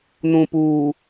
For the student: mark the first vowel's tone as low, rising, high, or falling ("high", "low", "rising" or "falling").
low